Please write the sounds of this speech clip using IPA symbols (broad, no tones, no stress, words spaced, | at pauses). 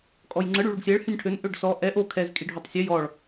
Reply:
kʼɔjŋ͡ǀə ɽyɭuɖsʲɛɭ hynʲʈʰøn ʔøɖsɔ ʔɛ ʔo kʰɛz kʼiɖʱotˤsʲø jɔɭ